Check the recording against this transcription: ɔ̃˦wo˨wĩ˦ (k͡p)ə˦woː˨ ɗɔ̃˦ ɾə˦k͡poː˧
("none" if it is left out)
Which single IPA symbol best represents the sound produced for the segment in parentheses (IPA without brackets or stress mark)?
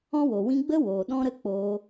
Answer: ɡ͡b